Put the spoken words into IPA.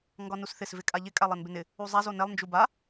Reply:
ŋ ɡ ɒ n u s θ ɪ s v ɪ kʼ a ʎ ɪ kʼ a lˠ ɛ n b ɪ n ɪ | u zˤ a z o n ɛ lˠ n d͡ʒ u b a

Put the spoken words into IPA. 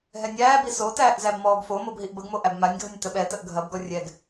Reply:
ɦ ɛ nʲ æː b i s o t æː ʔ z æ b m ɔː ɡ f o m o b ɦ i ʔ b ə ɡ m o ʔ æ b m a nʲ ɡʱ ə nʲ t ə ɓ ɛ t ə ʔ ɡʱ ɐ b ɡ ɔ rʲ ɛ ɡ

